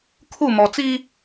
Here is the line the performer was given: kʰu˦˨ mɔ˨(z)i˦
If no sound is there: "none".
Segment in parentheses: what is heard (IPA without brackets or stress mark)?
t͡s